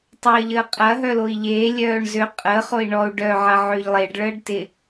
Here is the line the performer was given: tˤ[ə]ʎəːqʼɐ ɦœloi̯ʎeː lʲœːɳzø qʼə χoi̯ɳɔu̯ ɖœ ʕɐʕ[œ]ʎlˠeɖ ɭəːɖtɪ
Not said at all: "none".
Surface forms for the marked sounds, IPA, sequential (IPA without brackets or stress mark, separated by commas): əː, ø